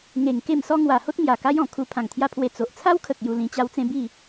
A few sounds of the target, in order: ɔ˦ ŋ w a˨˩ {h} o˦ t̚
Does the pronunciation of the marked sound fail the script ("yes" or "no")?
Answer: no